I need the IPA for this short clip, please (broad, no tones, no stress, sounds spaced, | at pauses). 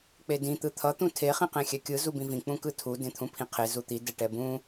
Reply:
k͡p e d ĩ t̪ ɯ t̪ʰ ʌ t̪ ũ tʰ e χ ĩ q ẽ xʲ ɛ kʲ ɯ z u b ĩ v ĩ k͡p ũ k ɯ tʰ u d ẽ t̪ʰ ũ pʰ ĩ qʰ e z u t̪ i d ɛ ʈ ɛ b ũ